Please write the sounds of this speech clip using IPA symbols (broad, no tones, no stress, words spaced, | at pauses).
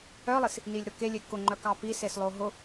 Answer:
œlˠis | nilʲɾʊkelʲe kʊŋ͡ǃœk ɑpises lˠoɦʊ